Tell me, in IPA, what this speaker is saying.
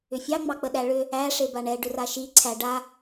ʏ fʲ ɑ ŋ͡m ɑ k͡p ə ɗ æ ɭ ʏ | æ ʂ e b a ɳ ɛ ɖ ʏ r a ʃ i ǀʰ æ ɖ a

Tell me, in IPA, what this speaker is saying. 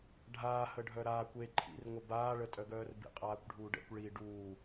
ɖʱ aː h ə ɖʱ œ ɾ aː kʷ e ǃʰ ḭ r ŋʷ ə b aː ɭ ə tʼ œ ɡ œː r b ḭ qʼ aː kʷ ɖʱ uː ɖ ɛ̰ kʷ ɭ i ɖ uː

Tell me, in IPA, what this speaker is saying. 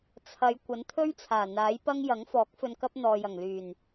t͡sʰ ɐ˨˧ j kʷ ɐ˨˥ n t̪ʰ ɵ˥ ɥ t͡sʰ aː˨˩ n̪ aː˨˥ j p ɐ˥ ŋ j ɐ˨˥ ŋ f ɔː˨˥ k̚ f ɵ˧ n k ɐ˥ p̚ n̪ ɔː˨ j ɐ˨˩ ŋ l yː˨˩ n

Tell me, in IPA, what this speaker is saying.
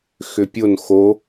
x ʏ pʲ o n x o

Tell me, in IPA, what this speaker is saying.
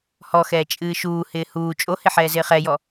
h ɔ x ɛː t͡ʃʼ ɨː ʃ uː h ɪː h uː t͡ʃʼ o h ɪ ħ ɛː z ɪː χ ɛ j ɔ

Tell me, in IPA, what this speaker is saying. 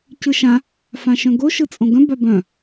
c ɯ ʃ ã | f ã ʃ œ̃ ɡ o ʃ ɯ t͡sʼ õ ɡ œ̃ b a b œ̃

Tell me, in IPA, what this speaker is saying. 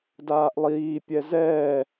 d aː ʔ lˠ iː pʲ ɛ z ɛː

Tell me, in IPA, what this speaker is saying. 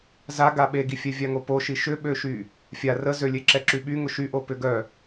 z a ɡ a ɓ e ɡ i fʲ ɛ vʲ a ŋ o p o ʃ i ʃ ʏ ɓ ø ʃ y | fʲ a r ə z ø lʲ e ǁ ɛ ǁ y ɓ y ŋ ʊ ʃ y ʔ o p ʏ ɡ œ

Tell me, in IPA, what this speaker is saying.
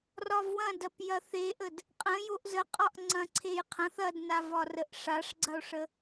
r ɒ v w ɐ̃ d ɐ p j ɐ θ e ʔ ə d | qʼ ə̃ j o ʔ z ə qʼ ɒ ʔ ŋ͡ǀ ɐ̃ ǀʰ e j qʰ ɐ̃ θ ɐ d n a v ɒ r ə ʔ ʂ a ʂ ɡ͡ǀ ɐ o̯ ʂ ə

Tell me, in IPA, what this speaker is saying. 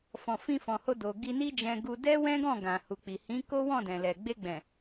f ɔ̃˨ f ĩ˧ f ɔ̃˨ h o˧ d o˨ ɡ i˧ n i˦ d͡ʒ ɛ̃˧ ɡ u˧ d ɛ˦ w ɛ̃˦ ɡ ɔ̃˦˨ ɡ ã˨ h u˨ k͡p i˨ h ĩ˨˦ k o˦ w ɔ̃˦˨ d ɛ̃˨ l ɛ˨ ɡ͡b e˧ ɡ͡b ɛ̃˨

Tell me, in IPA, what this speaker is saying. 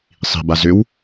sˤ i̤ b a z ʏ w

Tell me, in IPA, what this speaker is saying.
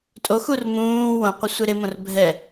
tʼ o x u r m ũː w õ qʷ ɪ sʷ e ɾ ɪ m õ r bʱ ɛ

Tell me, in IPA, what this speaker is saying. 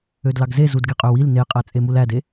ø d l ɑ ɡ z e z u d ɡ e qʼ ø w i l n e qʼ æ t͡sʼ e m u l æ d e

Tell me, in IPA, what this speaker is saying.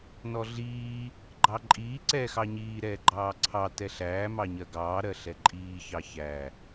n ɔ ɮ iː | ɡ͡ǃ ɑ ǃʼ iː ǀ ɛː x ɑ ɲ iː ɾ ɛː ɡ͡ǃ ɑː ǀʰ ɑ t ɛ ɬ æː m ɑ ɲ ɜ ɡ ɑː ɾ ɜ ɬ ɛ ǃʼ iː ç ɑ ç æ

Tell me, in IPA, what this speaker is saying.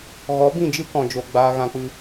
ɣ ɔ˨˦ b ĩ˦˨ d͡ʒ ɨ˦ k ɔ̃˨ d͡ʒ o˧ ɡ͡b aː˦ ɣ ã˧ k͡p ɨ˧

